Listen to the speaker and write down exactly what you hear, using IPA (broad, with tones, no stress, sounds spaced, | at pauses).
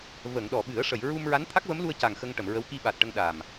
v ə˨˩˨ ŋ ɗ ɔ˨˩˨ ɓ ɨ˨˩˦ ə̯ ʂ ə˨˩˨ j ɹ u˧ m ɹ a˧˥ n t̪ʰ a˦˥ k̚ v ə˧˥ m l u˧ ə̯ c a˨˩ ŋ x ə˧ ŋ ʈ ə˨˩˨ m ɹ ə˧˥ w k i˧ ɓ a˨˩ t̚ ʈ ə˧ ŋ ɗ a˨˩ m